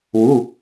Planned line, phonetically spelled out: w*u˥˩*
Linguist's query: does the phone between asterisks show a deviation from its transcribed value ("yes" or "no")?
yes